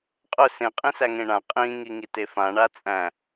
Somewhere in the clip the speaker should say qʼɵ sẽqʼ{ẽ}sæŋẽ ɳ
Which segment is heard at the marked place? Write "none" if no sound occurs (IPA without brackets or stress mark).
ĩ